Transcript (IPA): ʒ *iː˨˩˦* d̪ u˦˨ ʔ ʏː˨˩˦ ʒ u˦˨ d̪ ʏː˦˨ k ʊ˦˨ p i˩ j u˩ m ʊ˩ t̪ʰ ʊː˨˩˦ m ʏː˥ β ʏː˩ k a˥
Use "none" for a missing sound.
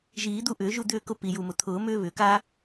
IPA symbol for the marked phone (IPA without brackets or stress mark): iː˨˩˦